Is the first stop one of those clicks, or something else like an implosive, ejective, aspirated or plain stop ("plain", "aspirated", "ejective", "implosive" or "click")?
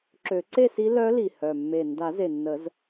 click